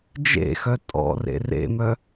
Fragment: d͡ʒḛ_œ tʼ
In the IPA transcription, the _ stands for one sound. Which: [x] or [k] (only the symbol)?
x